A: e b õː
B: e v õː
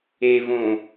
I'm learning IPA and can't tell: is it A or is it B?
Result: B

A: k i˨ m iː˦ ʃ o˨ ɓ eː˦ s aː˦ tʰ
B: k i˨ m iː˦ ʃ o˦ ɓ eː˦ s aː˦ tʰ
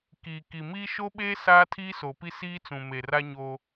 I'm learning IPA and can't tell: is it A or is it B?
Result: B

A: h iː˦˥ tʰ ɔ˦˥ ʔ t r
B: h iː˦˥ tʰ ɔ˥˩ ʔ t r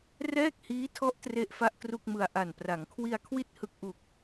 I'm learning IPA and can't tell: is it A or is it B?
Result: A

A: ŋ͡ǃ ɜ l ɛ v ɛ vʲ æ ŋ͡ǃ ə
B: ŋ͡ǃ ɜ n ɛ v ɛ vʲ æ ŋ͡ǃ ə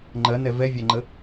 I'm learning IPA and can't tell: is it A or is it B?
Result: B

